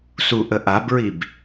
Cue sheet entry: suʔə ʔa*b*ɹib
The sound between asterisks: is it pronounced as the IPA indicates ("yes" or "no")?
yes